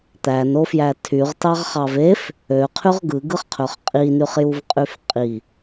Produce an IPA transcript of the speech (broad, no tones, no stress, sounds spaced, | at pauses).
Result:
t̪ æ n o f j æ tʰ y ʁ t ɑ ʁ χ ɑ v e f | ø qʰ y ʁ ɡ ɯ ɡ ɯ χ qʰ ø χ qʼ i n y χ j u v qʼ y f qʼ i